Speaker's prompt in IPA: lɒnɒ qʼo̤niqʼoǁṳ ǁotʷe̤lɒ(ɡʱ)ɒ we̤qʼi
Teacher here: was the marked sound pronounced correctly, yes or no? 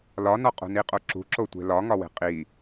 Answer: no